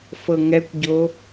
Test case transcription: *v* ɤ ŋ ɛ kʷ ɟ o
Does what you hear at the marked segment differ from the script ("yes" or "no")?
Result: yes